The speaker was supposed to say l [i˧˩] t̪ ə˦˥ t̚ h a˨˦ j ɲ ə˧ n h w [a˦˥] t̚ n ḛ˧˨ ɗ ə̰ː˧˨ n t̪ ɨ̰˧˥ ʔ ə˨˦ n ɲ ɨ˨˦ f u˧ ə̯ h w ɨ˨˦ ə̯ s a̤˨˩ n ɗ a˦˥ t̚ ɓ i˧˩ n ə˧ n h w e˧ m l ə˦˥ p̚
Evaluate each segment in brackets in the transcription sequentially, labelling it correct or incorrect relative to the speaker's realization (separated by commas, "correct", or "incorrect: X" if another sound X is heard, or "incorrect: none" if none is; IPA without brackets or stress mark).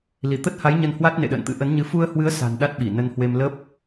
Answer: correct, correct